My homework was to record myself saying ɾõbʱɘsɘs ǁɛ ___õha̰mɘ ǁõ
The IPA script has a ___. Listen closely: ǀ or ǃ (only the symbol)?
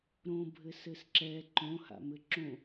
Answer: ǃ